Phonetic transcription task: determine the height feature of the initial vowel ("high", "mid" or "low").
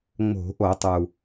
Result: mid